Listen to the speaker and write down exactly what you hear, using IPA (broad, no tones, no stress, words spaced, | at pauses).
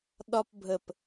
ɗɒp bʱəp